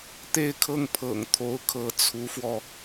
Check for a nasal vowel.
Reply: absent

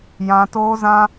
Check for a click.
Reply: absent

